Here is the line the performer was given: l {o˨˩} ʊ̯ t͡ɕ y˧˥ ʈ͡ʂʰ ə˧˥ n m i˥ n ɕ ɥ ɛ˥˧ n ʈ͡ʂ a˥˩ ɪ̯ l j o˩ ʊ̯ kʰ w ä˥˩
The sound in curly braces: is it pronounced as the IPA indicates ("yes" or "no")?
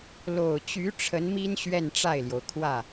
yes